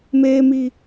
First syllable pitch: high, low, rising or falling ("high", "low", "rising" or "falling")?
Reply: high